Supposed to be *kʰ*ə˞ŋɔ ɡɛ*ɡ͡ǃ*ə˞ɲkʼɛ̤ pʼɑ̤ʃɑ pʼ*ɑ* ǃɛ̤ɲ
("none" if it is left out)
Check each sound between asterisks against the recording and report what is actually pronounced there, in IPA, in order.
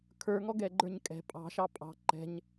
kʰ, ɡ͡ǃ, ɑ̤

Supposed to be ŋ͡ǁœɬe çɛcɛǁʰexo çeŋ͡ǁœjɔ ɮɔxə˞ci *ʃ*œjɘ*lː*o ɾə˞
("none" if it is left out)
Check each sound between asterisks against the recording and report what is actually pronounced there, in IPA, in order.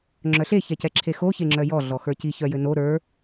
ç, n

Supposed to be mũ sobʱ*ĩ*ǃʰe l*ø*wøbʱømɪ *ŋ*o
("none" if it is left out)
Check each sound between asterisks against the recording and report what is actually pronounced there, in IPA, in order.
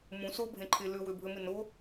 ẽ, ø, n

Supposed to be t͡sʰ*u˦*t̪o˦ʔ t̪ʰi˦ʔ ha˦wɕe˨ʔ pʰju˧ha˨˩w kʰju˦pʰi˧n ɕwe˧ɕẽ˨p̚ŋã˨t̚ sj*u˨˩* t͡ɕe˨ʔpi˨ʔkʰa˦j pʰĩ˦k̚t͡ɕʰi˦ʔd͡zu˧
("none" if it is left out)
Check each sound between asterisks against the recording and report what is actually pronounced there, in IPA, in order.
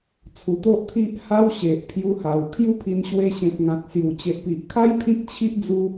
u˨˩, u˨˩

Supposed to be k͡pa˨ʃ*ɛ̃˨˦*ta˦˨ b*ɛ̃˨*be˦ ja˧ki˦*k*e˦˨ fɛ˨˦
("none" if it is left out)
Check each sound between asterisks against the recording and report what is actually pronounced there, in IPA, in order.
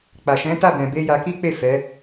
ɛ̃˨˦, ɛ̃˧, k͡p

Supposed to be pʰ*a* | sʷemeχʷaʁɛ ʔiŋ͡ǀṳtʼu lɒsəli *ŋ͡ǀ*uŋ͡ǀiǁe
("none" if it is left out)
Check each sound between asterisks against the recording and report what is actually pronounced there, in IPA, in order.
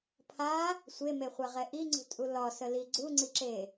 a, ɡ͡ǀ

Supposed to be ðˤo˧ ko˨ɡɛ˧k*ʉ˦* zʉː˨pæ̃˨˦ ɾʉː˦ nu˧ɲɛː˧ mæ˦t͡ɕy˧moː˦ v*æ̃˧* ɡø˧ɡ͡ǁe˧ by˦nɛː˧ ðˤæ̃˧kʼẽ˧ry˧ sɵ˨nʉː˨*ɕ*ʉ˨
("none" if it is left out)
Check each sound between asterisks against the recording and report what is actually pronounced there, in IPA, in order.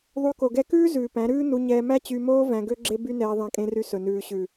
ʉː˦, æ̃˧, ɕ

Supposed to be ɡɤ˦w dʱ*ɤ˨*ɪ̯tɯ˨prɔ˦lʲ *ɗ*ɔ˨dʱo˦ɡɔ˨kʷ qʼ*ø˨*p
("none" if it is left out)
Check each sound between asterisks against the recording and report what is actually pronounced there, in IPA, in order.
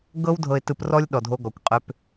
ɤ˨, ɗ, ø˦

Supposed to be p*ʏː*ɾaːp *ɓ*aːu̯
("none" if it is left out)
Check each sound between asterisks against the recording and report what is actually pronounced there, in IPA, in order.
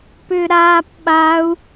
ʏː, ɓ

